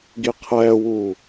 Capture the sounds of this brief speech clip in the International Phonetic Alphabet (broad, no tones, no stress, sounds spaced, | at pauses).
ɡ i qʰ ɛː w uː